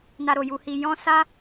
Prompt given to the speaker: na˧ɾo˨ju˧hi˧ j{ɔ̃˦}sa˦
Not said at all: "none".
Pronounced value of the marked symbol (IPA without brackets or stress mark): ɔ̃˦